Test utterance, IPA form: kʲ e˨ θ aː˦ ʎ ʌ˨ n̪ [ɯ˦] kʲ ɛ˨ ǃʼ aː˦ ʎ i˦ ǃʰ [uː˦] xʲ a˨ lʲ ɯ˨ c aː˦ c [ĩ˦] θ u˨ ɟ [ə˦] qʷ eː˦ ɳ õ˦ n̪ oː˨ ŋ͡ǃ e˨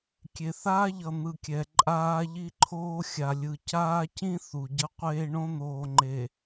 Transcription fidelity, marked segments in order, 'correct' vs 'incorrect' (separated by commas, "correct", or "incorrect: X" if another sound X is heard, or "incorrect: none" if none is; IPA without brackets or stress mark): incorrect: ɯ˨, incorrect: oː˦, correct, incorrect: ʌ˦